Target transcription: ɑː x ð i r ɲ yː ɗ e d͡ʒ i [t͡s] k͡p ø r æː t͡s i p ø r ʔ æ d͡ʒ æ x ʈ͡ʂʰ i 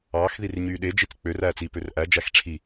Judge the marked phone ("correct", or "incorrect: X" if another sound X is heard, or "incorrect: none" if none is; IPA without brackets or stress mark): correct